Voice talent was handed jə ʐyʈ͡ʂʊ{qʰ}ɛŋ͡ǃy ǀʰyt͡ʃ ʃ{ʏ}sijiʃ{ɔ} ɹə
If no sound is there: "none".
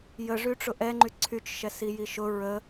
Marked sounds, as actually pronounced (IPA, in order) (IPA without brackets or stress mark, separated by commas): ʔ, ɛ, ʊ